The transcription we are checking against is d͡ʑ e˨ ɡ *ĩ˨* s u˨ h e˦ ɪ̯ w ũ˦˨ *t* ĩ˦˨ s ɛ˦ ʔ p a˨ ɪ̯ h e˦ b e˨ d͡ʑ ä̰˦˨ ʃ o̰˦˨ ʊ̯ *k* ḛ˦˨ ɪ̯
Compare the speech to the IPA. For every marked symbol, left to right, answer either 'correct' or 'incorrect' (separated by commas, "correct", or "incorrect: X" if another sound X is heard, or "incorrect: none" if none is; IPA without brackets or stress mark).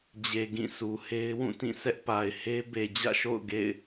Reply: incorrect: ĩ˦˨, correct, incorrect: ɡ